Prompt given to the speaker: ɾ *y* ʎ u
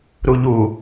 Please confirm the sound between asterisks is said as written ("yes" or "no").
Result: no